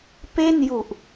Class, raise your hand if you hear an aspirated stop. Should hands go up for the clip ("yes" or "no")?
no